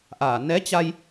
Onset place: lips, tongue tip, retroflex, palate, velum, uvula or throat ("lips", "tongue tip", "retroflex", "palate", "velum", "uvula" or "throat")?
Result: throat